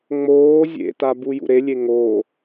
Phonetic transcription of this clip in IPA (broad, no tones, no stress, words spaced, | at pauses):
ŋ͡moː zʲḛtabu jṵɾelʲe ŋo